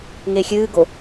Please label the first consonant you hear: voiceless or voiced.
voiced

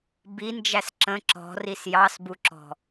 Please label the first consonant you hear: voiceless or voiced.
voiced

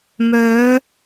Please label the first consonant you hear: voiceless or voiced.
voiced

